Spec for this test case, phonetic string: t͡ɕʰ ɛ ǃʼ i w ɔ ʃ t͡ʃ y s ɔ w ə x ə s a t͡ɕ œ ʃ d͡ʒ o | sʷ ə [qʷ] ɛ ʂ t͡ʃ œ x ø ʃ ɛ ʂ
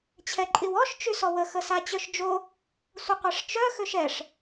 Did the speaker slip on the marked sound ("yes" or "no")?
no